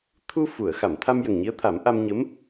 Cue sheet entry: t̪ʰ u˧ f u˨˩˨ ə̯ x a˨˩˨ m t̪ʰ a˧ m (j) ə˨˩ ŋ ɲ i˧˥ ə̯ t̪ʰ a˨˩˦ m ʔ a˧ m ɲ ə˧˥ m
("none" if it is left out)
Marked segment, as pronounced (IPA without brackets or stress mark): j